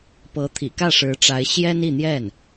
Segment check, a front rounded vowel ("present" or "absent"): absent